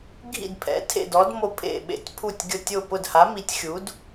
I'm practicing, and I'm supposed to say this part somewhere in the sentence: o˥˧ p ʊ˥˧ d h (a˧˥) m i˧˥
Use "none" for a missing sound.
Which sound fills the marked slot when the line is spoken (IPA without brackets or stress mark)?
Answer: a˧˥